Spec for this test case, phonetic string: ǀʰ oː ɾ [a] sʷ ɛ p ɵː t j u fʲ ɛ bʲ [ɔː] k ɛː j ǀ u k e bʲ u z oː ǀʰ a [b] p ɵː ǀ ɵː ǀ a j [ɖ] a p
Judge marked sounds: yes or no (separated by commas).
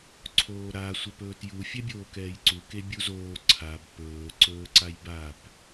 yes, no, yes, no